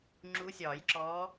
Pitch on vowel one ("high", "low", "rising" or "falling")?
rising